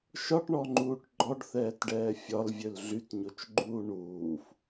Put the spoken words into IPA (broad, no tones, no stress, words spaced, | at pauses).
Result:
ʃɒʈɳɔŋ͡ǃuːʈ ɡ͡ǃɔɖθɛːtɖɛː fʲɒlvʲøl ɮytɲot͡ʃɡ͡ǃuː ɳuːf